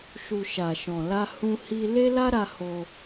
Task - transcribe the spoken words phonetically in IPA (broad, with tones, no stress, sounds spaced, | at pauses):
ʃ u˨ ʃ a˨ ʃ ɔ̃˨ l a˧ h ũ˧ h i˧ l e˦ l a˦ ɾ a˧ h o˧